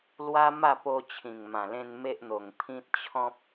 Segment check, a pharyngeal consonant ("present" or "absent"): absent